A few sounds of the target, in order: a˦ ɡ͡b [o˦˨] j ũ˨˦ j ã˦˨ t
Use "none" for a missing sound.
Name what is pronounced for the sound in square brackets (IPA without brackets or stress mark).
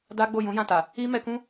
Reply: o˦˨